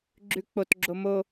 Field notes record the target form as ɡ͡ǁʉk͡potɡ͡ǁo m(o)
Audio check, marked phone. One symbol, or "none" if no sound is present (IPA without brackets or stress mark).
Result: o